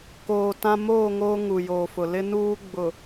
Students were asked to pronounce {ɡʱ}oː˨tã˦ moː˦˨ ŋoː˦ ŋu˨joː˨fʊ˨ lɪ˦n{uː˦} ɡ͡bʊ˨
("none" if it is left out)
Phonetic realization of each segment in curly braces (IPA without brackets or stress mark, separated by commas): k, uː˦